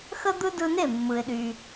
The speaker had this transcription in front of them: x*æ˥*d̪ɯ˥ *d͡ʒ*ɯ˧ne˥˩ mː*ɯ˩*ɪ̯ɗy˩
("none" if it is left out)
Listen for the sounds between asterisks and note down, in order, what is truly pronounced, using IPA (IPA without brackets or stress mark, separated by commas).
ə˥, d, ɯ˩